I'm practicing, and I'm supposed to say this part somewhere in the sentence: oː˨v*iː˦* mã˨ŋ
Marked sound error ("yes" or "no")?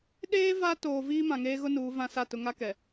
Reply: no